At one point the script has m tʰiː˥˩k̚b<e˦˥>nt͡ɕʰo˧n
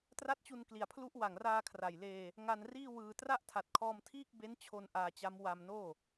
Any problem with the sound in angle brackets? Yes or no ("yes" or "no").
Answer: no